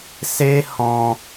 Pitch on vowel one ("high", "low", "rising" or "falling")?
high